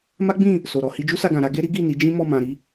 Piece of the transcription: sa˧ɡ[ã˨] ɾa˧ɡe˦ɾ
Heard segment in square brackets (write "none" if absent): ã˨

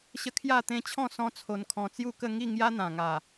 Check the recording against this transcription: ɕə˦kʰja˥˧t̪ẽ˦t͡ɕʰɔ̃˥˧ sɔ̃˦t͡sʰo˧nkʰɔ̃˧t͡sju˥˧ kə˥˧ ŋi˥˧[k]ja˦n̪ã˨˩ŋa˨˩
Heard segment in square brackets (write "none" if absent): ŋ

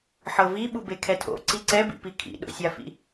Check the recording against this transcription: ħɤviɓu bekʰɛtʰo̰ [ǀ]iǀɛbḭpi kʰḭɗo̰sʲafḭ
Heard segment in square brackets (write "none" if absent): ǀ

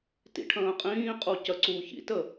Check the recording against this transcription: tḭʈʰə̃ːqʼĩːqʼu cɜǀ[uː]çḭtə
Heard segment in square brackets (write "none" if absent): uː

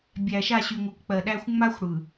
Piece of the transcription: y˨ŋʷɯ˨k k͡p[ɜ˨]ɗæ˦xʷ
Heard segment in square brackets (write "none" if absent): ɜ˨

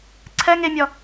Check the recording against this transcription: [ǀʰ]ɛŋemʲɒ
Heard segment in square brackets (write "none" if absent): ǀʰ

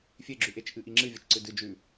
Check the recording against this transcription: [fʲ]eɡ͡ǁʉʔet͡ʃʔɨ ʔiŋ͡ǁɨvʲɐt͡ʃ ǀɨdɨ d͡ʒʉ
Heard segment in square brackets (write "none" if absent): fʲ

